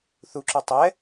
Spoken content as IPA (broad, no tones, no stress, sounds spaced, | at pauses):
θ u ǁ u tˤ ɛ